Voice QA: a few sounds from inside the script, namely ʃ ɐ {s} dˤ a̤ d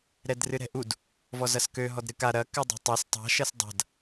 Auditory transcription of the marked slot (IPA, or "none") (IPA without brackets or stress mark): s